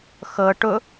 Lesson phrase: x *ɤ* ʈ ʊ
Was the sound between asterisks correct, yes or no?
yes